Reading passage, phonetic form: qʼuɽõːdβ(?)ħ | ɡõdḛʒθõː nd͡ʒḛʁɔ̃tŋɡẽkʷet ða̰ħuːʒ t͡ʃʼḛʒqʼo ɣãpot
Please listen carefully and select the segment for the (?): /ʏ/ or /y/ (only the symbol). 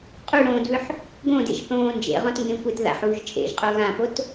ʏ